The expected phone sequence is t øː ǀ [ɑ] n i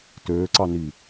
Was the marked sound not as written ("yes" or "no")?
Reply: no